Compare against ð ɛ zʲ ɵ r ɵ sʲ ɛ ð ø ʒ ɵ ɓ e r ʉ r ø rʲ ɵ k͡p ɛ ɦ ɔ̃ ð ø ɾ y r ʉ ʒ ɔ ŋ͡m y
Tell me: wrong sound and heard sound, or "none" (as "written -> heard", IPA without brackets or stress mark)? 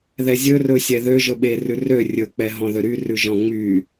ɔ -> ɔ̃